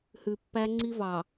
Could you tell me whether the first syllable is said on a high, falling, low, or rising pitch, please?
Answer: low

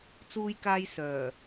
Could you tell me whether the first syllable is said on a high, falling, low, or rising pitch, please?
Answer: high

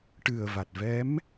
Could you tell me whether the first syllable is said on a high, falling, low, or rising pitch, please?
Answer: low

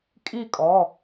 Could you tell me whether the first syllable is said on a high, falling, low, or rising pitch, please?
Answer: falling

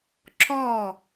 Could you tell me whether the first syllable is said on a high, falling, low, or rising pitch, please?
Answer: falling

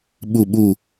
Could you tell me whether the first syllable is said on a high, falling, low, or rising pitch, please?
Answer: low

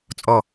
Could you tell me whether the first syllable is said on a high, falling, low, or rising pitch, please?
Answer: falling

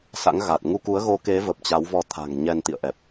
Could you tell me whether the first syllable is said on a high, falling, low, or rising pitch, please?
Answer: rising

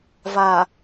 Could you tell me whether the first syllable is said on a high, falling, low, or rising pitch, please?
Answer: low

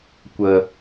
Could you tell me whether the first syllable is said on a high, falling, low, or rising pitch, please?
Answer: low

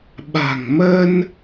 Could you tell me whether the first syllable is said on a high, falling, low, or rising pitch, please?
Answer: low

